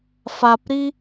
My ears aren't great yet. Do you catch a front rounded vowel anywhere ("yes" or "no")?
no